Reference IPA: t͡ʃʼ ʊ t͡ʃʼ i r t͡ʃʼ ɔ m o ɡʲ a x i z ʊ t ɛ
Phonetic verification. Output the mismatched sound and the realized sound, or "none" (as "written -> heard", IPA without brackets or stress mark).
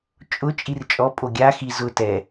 m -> pʼ